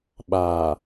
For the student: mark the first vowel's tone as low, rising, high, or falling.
low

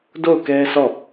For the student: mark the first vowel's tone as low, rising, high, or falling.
falling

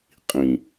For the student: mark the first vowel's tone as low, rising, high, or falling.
low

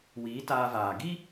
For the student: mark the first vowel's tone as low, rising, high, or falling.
rising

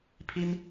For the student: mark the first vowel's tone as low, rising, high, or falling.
high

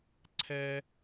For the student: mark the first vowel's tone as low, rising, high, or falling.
high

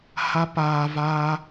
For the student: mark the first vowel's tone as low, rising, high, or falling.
high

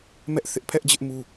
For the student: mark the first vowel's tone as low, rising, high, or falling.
high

